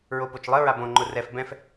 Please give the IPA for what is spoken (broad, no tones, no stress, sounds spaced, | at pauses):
ɹ o p o t͡ʃ lˠ ə ɹ a b õ ŋ͡ǃ ʊ r ɛ f b ɛ̃ f